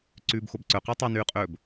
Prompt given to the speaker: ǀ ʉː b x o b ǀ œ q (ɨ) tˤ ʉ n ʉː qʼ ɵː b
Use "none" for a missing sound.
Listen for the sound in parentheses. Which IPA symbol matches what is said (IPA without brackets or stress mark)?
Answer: e